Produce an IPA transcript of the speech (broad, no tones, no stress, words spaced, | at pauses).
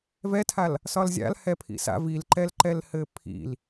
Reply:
vɛtʰal | sɒlzʲa̰l hɛpʰḭsa̰ vilǃɛlǃɛlhɘ pʰḭl